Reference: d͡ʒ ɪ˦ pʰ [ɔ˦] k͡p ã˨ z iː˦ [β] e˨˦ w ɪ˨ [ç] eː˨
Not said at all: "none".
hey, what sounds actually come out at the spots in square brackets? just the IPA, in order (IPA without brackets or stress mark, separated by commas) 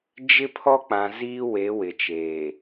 ɔ˦, w, t͡ʃ